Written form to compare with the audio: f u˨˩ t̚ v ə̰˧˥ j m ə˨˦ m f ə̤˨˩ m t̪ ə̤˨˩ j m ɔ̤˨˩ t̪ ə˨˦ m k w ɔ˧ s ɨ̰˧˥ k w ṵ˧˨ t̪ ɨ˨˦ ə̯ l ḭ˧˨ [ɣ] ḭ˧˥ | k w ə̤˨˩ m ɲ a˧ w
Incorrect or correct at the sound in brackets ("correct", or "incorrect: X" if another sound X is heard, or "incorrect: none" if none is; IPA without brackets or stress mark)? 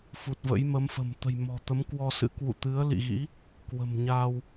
correct